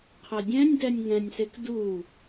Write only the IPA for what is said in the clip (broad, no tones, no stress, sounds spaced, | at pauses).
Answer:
qʰ ɛ dʲ ɛ̃ nʲ d ɛ nʲ ŋ ɛ̃ nʲ s e k d u